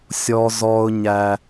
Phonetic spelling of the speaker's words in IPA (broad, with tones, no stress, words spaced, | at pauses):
sʲɔ˦zɔ˦ʊ̯ɲæ˦